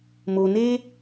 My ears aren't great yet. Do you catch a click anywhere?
no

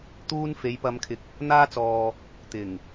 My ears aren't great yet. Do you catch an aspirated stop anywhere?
yes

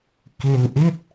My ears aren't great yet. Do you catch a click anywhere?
no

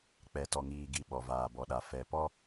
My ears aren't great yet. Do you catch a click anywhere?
no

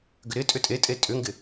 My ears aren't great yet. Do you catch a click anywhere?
no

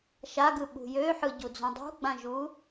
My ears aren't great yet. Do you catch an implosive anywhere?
yes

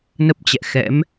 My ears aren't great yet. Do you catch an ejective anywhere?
no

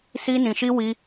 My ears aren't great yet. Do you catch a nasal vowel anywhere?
yes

